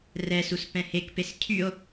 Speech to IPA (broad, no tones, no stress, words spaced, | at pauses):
rɛsus pɛ̃hekpes cʰyo̯